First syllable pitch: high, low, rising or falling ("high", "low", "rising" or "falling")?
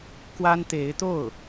high